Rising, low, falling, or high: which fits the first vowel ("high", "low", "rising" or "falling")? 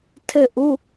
falling